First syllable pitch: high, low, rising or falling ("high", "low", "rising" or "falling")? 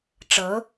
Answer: rising